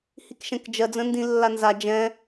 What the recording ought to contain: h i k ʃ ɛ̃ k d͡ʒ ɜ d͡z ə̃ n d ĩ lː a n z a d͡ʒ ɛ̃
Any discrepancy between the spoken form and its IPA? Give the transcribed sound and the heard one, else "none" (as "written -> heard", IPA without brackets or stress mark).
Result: none